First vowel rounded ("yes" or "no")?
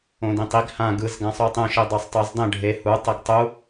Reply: yes